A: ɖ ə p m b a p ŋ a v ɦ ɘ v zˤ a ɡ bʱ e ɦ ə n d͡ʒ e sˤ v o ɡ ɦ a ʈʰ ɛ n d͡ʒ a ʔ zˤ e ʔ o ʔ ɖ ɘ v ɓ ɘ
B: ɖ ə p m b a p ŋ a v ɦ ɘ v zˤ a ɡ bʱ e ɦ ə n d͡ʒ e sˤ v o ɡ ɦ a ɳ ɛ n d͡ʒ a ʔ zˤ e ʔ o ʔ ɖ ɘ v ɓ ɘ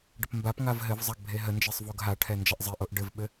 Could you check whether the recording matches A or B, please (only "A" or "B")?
A